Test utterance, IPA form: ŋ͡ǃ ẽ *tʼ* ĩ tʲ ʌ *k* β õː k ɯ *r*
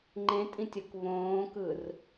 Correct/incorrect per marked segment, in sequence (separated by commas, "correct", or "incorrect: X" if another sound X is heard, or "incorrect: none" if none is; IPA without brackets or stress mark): correct, correct, correct